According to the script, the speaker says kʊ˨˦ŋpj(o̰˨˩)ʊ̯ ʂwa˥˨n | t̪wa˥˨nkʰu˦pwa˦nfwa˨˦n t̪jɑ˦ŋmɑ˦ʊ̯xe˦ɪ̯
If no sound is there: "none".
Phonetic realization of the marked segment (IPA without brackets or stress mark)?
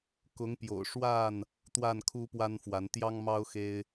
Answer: o̰˨˩